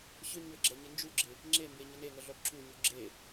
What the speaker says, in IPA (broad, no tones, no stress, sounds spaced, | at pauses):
ɕ ʏ ɲ ʏ ɡ͡ǁ ɛ ɲ ɪ n d͡ʒ u ɡ͡ǁ ɪ | ŋ͡ǁ e m b e ɲ ə n e ŋ ə ɮ œ b ǁ u ɲ u ɡ͡ǁ e